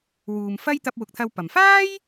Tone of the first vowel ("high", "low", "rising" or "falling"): low